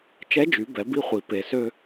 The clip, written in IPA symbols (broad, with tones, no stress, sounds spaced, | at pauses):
t͡ʃ ɛ˧˥ d͡ʒ y˩˧ b ɛ˩˧ b i˧˥ χʷ i˩ p e˩ s ø˧